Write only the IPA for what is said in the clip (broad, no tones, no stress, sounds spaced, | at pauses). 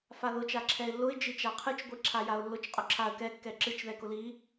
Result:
f a ð ʊ t͡ʃ a ǁʰ ɛ ɪ̯ lː ʊ ɪ̯ d͡ʒ i t͡ʃ a qʰ ɨ t͡ʃ ɡʷ i ǁʰ a j a ʊ̯ lː ʊ t͡ʃ qʼ ʊ ǁʰ a ə̯ k ɛ kː ɛ ǁ ɨ t͡ʃ ð ɛ k ʊ l i